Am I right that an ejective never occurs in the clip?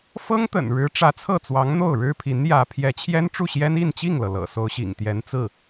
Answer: yes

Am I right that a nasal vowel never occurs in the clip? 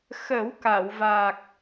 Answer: yes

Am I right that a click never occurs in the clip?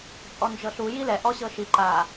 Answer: no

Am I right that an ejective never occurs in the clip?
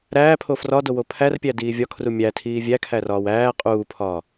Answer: no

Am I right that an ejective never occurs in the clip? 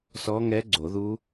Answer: yes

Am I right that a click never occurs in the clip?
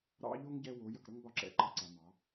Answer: no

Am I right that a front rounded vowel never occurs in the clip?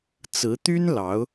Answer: no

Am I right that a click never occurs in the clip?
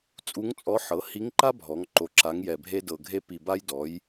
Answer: no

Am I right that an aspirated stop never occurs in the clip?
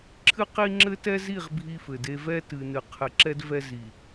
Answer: no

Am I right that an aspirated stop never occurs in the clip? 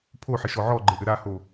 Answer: no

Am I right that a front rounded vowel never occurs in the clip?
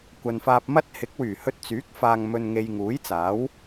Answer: no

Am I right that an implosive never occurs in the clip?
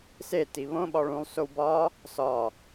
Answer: no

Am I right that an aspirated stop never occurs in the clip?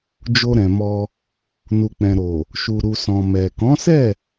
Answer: yes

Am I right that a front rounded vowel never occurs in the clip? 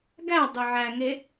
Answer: no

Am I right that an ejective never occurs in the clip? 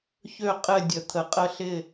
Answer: no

